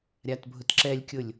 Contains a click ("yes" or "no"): yes